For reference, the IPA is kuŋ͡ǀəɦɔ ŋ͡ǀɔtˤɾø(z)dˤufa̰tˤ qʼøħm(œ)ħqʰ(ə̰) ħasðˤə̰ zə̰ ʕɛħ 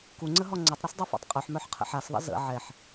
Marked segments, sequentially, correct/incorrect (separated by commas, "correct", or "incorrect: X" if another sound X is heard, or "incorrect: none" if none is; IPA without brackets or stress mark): incorrect: s, correct, correct